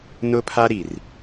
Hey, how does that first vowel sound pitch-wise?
high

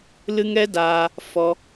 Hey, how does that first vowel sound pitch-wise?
high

